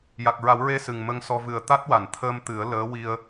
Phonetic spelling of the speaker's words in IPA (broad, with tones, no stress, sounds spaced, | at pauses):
j a˨˩ k̚ ɹ a˨˩˦ w ɹ e˧ s ɨ˨˩ ŋ m ə˧ ŋ s ɔ˧ v ɨ˨˩ ə̯ t̪ a˦˥ t̚ w a˨˩˨ n t̪ʰ əː˧ m t̪ ɨ˨˩˦ ə̯ l əː˧˥ w i˧ ə̯